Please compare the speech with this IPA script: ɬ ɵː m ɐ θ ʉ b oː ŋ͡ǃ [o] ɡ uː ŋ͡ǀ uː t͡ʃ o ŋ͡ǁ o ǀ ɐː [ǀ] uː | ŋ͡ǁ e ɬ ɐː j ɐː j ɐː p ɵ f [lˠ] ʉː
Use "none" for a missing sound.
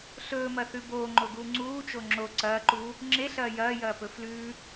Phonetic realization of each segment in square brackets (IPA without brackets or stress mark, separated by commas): o, ǃ, l